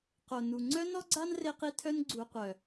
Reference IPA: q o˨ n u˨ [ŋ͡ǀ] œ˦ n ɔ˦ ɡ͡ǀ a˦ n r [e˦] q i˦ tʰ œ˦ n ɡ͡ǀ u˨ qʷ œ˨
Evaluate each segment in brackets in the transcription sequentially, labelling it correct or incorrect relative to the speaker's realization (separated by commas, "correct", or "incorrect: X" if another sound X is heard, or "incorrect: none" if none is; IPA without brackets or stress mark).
correct, correct